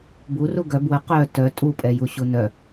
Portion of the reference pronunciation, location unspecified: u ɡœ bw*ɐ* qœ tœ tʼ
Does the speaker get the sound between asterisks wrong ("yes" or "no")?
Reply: yes